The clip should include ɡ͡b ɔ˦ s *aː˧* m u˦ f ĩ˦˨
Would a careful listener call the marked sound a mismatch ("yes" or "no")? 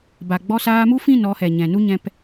no